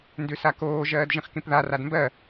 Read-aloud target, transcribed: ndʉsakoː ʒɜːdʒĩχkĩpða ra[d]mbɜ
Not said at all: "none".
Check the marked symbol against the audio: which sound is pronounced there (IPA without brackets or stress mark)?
d